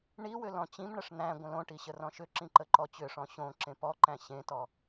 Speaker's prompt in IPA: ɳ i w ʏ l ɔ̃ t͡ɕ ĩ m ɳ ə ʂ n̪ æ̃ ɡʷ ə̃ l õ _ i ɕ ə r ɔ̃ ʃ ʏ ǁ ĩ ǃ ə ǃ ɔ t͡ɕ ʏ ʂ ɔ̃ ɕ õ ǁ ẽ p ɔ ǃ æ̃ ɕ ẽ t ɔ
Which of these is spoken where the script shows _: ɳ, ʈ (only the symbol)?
ʈ